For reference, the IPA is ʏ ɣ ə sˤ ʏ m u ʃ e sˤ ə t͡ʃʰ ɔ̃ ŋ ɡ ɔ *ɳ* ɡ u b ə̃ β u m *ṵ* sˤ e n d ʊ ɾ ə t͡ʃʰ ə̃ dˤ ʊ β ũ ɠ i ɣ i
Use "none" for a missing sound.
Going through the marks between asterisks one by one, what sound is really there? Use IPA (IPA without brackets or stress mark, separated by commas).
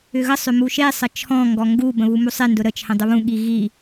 ŋ, u